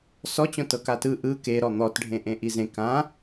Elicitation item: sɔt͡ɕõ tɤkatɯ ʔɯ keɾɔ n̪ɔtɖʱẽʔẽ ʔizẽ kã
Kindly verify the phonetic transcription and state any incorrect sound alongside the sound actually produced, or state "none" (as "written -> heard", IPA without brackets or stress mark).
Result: none